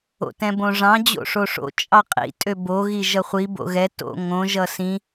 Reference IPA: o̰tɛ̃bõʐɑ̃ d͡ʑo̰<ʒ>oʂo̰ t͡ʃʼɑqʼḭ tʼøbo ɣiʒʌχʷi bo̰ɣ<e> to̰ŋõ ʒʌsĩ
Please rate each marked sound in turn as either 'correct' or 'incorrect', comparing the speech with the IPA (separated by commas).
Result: incorrect, incorrect